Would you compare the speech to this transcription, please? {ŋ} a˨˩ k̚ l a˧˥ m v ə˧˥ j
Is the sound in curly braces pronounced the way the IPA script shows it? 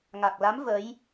yes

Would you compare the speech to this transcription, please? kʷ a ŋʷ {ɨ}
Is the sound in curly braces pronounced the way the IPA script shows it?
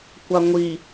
no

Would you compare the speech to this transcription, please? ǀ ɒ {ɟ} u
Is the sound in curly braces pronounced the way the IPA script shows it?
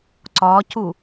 no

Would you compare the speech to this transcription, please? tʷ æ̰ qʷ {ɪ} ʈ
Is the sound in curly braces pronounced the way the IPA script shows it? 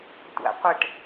yes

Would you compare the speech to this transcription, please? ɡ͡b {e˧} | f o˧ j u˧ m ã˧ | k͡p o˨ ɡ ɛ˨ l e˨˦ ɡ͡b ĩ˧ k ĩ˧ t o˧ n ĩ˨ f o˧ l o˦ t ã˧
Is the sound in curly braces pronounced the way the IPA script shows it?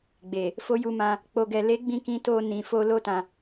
no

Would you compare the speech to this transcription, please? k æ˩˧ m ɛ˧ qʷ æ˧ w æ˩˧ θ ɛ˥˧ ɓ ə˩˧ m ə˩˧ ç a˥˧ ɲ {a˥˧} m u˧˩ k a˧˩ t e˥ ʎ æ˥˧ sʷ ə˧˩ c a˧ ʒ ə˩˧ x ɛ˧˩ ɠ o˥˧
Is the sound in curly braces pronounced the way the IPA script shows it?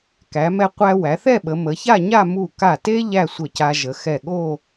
yes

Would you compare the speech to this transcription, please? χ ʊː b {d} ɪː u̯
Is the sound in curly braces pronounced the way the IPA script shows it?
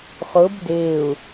yes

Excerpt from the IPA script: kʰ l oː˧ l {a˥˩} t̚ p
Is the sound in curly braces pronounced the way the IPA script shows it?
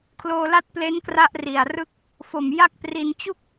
yes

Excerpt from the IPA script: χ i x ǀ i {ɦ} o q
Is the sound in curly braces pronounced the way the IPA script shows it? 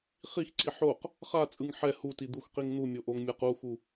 no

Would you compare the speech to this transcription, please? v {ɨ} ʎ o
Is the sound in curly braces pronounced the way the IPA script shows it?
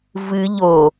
yes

